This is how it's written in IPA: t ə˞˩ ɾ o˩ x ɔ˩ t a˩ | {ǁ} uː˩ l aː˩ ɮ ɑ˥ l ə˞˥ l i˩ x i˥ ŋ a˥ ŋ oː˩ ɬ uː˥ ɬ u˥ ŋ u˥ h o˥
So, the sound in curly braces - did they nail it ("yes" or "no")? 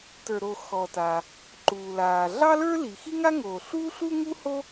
no